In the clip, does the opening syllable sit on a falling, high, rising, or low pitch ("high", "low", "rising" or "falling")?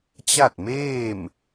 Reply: falling